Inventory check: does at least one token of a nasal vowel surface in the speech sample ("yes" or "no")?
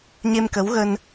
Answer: no